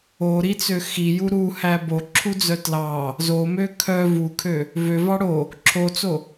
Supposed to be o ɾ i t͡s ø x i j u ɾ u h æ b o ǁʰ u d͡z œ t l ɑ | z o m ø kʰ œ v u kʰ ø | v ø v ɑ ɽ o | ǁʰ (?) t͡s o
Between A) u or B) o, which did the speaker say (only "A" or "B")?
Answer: B